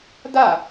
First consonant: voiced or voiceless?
voiced